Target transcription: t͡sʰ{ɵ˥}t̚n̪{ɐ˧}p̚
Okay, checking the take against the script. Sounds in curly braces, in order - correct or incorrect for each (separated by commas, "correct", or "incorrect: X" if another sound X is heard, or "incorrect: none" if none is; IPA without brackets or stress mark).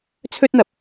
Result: correct, correct